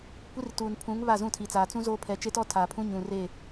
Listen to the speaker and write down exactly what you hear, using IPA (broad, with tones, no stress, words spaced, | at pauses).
kʷi˦r tuː˨npʰũ˨˦ŋ βa˦˨zũ˦˨tʰi˨t͡saː˨ t͡sũ˦zoː˦ pʰɛ˨ t͡ʃe˦tɔ˦ tʰaː˨pʰũ˦ ɲũ˨re˦˨